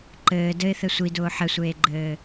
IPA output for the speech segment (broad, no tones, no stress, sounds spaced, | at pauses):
ǃ ɘː d ɘ ɪ̯ θ ɘ sʷ i d ʊː ħ ɘ sʷ eː ɡ͡ǃ ɘː